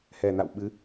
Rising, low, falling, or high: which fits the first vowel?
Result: low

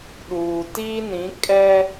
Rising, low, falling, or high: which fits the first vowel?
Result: low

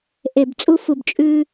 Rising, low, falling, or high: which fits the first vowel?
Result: low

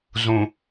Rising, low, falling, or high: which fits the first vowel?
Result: low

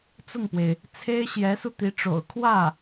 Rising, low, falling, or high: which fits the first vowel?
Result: falling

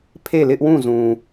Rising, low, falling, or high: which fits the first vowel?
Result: falling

